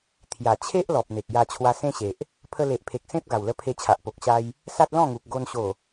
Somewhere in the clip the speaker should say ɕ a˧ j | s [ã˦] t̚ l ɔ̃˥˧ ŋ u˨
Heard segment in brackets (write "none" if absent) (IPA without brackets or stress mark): a˦